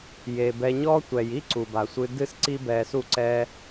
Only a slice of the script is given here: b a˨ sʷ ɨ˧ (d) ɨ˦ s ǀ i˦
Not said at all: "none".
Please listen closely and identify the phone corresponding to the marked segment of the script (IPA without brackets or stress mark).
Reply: d